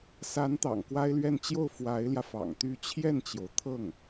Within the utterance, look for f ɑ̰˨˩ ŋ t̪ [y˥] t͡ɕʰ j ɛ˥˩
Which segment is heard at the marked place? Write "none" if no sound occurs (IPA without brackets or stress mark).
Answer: y˧˥